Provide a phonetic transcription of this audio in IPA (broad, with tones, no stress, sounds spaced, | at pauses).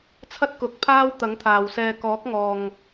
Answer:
t͡sʰ ɐ˥ t̚ k ʊ˨˥ k̚ pʰ aː˥ w t̪ ɐ˨˥ ŋ t̪ʰ aː˨ w s ɛː˧ k ɔː˨˥ k̚ ŋ ɔː˨ ŋ